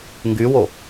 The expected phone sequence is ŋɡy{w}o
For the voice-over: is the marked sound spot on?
yes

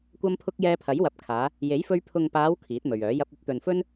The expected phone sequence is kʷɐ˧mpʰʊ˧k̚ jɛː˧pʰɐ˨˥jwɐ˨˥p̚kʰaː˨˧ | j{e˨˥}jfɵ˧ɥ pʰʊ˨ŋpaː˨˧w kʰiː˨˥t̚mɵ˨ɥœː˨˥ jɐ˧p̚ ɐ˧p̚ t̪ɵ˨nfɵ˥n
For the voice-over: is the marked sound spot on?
yes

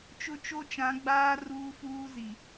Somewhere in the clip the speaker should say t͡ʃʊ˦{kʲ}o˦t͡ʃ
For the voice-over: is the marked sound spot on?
no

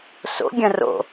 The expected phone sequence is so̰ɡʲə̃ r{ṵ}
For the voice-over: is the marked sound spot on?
no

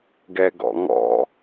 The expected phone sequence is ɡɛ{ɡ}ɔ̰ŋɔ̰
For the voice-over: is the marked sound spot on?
yes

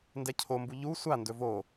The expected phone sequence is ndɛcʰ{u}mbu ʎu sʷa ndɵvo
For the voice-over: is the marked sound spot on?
no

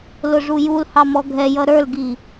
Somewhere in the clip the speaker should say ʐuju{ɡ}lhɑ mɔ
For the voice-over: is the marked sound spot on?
no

